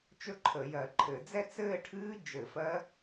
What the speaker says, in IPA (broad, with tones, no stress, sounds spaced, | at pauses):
t͡ʃ ɵ˥˧ ǃʰ ə˧˩˧ j ɜ˧˩˧ ǃʰ ɘ˧˩˧ d͡z ɛ˥˧ t͡s ɘː˥˧ ʈʰ ɨː˦˥ d͡ʒ ɘ˧˩˧ f ɜ˦˥